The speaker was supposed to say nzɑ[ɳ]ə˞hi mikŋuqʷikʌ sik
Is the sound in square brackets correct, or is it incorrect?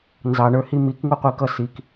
correct